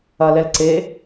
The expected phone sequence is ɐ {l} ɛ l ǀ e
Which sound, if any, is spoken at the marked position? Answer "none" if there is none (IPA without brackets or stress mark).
l